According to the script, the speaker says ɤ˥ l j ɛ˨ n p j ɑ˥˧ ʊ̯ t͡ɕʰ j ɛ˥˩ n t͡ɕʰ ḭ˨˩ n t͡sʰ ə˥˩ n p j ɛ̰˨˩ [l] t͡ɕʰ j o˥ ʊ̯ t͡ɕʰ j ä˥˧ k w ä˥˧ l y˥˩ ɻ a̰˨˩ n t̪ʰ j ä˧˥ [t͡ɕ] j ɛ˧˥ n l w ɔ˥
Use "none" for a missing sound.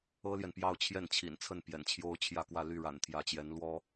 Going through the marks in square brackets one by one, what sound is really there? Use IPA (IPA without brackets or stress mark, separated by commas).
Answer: n, t͡ɕ